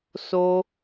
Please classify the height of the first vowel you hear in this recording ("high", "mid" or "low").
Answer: mid